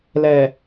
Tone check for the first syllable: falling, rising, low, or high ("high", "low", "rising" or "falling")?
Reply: low